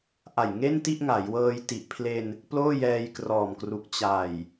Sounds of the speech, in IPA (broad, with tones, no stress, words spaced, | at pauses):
ʔa˨˩j ŋe˥˩nti˥˩ʔŋa˩˦jwɤː˧j ti˨˩ʔ pʰle˧n | ploː˥˩jɛː˧jkrɔː˨˩mkru˨˩k̚ t͡ɕa˨˩j